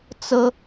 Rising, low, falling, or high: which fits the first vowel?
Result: high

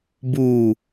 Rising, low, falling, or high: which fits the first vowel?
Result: low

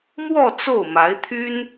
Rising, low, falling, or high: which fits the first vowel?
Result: falling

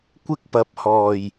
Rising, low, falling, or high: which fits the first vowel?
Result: high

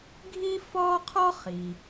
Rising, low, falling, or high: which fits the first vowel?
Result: high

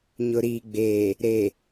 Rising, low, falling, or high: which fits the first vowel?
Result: low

